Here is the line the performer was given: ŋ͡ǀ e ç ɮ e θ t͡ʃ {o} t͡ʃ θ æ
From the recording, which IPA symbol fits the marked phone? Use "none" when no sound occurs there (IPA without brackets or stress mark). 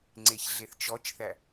ɔ